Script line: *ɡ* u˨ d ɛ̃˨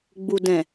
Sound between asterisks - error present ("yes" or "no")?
yes